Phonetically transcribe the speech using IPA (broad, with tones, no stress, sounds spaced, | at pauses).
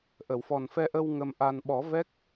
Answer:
ʔ ə˨˩˨ w f ɔ˨˩ n f ɛ˧ ʔ ə˧ w ŋ ə˧ m ʔ a˧ n ɓ ɔ˨˩˦ v ɛ˦˥ k̚